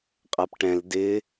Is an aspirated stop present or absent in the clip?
absent